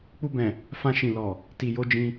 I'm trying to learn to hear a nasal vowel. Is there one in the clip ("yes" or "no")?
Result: yes